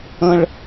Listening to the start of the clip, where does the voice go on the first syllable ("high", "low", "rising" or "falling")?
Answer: high